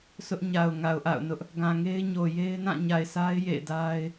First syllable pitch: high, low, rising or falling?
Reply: high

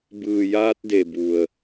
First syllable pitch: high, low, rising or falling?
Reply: low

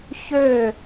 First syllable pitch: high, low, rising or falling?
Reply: falling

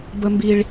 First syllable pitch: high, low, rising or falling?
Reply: low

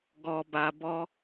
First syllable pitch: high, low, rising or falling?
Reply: low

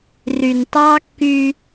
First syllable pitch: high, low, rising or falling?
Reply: low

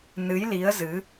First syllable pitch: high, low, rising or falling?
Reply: rising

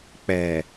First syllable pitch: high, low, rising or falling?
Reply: low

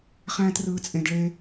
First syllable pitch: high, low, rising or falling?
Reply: high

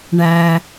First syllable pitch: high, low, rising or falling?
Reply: low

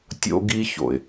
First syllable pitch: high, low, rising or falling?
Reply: high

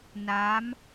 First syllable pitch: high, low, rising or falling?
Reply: rising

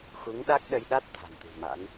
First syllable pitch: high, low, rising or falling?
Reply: rising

